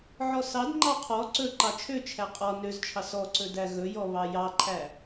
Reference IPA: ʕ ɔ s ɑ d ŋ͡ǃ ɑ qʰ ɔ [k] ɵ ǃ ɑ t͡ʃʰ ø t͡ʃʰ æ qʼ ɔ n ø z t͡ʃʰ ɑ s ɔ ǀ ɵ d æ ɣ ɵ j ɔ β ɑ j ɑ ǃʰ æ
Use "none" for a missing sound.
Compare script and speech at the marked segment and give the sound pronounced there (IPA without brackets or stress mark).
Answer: ǀ